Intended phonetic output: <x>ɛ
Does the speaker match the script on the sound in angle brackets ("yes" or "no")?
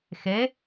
yes